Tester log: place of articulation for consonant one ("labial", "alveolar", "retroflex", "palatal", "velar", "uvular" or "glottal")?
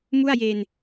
labial